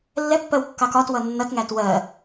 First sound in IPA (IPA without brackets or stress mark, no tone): lː